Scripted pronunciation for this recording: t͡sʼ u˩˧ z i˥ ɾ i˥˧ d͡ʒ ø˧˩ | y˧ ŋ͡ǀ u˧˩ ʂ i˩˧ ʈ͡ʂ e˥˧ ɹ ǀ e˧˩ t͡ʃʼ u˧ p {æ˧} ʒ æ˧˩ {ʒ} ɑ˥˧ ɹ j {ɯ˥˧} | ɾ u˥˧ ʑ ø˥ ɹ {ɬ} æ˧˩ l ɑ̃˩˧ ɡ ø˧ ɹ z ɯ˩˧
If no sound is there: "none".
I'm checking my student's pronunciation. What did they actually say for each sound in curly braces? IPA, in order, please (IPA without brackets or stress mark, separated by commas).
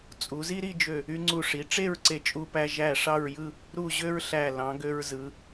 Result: æ˧, ʂ, ɯ˥˧, ɬ